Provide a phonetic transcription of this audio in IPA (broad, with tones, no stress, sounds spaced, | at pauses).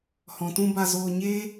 h ɔ̃˨ t ũ˧ b a˧ z oː˧ ɲ eː˦